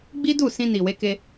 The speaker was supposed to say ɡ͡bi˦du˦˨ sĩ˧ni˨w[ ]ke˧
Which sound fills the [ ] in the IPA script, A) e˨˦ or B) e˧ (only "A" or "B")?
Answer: A